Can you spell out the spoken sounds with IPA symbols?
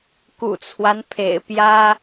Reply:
kṵ˨˩t͡sʰwa˦npʰḛ˨˩ɪ̯pjä˥

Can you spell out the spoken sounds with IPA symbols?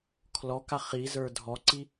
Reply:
kʰlɔka χizə˞ dʱɔǀi

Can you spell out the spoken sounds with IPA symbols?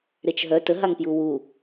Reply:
ɾet͡ʃɦœ təɦaŋpju wu

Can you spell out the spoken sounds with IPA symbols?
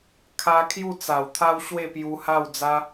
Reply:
kʰa˧ kʰju˥˧t͡sa˨˩wt̪ʰa˦w ɕwe˥˧pju˧ ha˥˧wd͡za˦

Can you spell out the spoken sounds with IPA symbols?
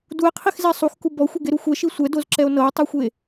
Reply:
due̯qʰixzɛ sˤuxku bɔxʷeɡeɾu xʷɛʃi sʷɛdozǁɛo̯ nɤe̯tˤuxʷe

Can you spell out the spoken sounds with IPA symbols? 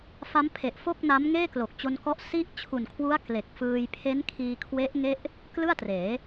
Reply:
fa˦˥mpʰe˨˩ʔfo˥˩k̚na˦˥m ŋeː˥˩klo˨˩k̚t͡ɕo˧nkɔ˦˥ʔ si˥˩ʔ t͡ɕʰu˨˩nkʰwu˦˥a̯ kle˨˩k̚fɯː˧j pʰe˦˥nkʰiː˧kʰwe˦˥ʔ ŋe˥˩ʔ | klɯ˥˩a̯treː˩˦

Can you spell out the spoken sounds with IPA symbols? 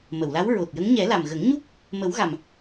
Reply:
mə˨˩˨wla˧˥w ɹo˨˩t̚jə˧˥ŋ ɲɛ˨˩˦la˨˩m ɣə˨˩˦ŋɲu˦˥k̚ | mə˨˩˦wɣa˨˩m

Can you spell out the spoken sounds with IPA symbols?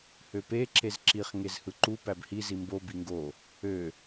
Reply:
høpe ǁezǁiχ ŋezhɯǃu pæbhi zimbo biŋɡo | ø

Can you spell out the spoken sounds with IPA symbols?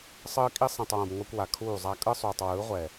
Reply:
sˤɯː˦kʼi˦ sˤĩ˨tˤwõ˨b ŋʷɛ˦kʷwa˨ kʰuː˦˨zˤa˦ kʼɯ˦sˤuː˨tˤ wɯː˨˦ʁʷɛ˨

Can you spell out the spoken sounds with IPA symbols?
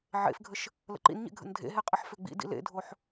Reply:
ʕḛfɡʱəʃ | lə̰ǃḭnɲḛ ɡʱə̰ndʱḛɦe qʼəħføɡ͡bḭdḭ lḛdʱoħ

